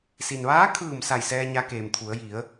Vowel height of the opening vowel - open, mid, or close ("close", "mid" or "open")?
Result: close